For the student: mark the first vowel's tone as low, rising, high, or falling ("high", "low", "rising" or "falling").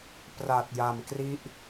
low